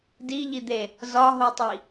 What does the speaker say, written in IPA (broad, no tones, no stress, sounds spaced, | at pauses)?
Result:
d i ʎ i d̪ e | z ɒ ɦ o tˤ i